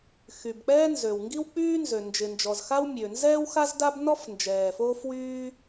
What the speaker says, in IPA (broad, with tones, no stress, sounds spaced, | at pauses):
x y˩ b k͡p ɛː˥ n z ø˩ w ŋ ɡ i˥ w k͡p yː˥ n z ø˩ n d͡ʒ ɪ˩ n d͡ʒ ɔ˩ z x a˥ w mʲ ø˩ n z ɛː˥ w x a˥ z d a˥ b n ɔ˥ f n d͡ʒ ɛː˩ f oː˥ f w yː˥